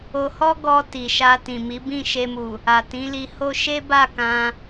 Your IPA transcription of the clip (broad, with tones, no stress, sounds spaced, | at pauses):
o˧ h ɔ˦ ɡ ɔ˧ t i˨ ʃ a˧ t ĩ˨ m i˨˦ b ĩ˦˨ ʃ e˧ m u˨ | a˨ t ĩ˨˦ l i˧ h o˦ ʃ e˦ b a˦˨ k ã˧